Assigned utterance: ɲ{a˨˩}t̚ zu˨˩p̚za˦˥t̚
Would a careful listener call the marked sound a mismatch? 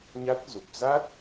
yes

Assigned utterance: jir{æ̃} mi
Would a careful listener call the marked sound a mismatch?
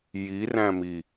no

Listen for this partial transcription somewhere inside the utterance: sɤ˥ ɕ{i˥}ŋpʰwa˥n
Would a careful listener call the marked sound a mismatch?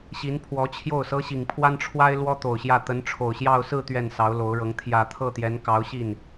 yes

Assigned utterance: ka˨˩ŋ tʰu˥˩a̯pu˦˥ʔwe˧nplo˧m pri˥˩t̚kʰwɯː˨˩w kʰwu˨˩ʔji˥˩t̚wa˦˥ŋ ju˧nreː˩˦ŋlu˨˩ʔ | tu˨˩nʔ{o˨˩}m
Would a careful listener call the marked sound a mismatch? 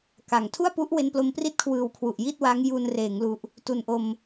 yes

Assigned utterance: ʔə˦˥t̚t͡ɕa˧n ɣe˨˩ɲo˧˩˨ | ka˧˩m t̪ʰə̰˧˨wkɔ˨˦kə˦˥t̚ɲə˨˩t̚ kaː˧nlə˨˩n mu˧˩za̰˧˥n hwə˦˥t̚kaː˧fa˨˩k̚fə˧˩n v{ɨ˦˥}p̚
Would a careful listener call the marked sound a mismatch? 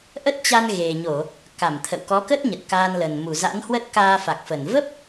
yes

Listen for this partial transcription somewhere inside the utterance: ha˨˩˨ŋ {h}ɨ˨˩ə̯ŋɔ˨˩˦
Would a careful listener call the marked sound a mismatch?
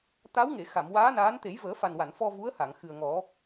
yes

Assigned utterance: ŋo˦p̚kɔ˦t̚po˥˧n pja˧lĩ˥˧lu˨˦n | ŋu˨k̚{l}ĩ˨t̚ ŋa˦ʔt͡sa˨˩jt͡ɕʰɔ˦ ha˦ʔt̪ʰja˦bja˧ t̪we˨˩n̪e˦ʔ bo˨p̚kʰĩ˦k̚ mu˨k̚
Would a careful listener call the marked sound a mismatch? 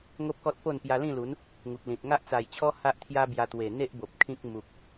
no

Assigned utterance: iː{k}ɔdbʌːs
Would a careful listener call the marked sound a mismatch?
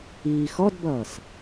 yes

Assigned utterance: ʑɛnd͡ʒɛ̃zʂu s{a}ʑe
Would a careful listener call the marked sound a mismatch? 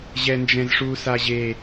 no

